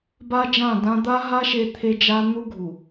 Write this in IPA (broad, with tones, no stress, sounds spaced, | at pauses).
b a˦ d͡ʒ ã˦˨ d ã˦ d̪ a˦ ɦ a˦ ʃ e˦ t̪ʰ e˦ d͡ʒ a˦ n̪ u˦ ɡʱ u˨